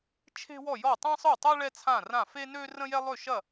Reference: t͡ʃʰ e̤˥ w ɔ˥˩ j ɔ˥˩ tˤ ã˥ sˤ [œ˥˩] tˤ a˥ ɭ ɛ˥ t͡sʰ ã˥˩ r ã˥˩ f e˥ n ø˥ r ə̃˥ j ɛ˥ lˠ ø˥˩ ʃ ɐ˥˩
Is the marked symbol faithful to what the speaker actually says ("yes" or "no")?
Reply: yes